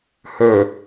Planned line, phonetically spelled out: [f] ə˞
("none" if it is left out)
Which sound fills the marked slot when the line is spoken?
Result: h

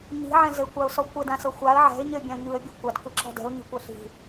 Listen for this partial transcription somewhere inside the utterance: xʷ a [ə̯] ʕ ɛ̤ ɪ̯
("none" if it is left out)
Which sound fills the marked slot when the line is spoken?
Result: ə̯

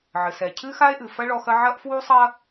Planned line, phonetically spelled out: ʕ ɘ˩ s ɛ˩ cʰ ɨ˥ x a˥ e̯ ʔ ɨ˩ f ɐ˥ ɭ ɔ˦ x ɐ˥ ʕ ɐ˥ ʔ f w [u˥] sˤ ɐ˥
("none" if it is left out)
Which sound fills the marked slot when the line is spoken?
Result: u˥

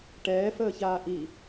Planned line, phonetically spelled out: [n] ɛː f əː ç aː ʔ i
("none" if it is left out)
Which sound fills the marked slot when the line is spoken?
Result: ʈ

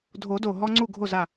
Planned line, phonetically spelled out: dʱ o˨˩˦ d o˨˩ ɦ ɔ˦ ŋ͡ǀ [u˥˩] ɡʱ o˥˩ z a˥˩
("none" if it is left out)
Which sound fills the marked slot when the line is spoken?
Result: u˥˩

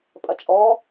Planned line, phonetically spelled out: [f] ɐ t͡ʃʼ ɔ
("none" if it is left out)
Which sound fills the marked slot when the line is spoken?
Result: pʼ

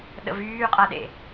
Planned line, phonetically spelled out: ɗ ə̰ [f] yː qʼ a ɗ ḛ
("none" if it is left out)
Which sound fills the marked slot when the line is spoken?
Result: v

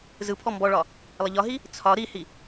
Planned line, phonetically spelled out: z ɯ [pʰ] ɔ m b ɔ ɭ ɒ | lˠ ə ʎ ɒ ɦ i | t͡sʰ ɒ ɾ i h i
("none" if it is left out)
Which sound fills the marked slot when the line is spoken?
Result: pʰ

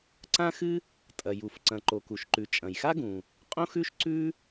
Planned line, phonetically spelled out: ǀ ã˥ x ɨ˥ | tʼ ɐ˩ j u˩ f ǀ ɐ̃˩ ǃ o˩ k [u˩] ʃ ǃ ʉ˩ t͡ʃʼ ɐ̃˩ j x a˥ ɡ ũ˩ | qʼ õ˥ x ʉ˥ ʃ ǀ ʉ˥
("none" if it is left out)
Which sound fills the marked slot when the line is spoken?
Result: u˩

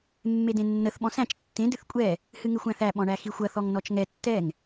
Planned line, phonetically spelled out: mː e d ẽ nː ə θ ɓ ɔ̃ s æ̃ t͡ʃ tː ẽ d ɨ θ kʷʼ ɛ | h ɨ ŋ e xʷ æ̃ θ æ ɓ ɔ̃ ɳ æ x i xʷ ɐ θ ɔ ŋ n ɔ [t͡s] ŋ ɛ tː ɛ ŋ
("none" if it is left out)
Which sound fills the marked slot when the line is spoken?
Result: t͡ʃ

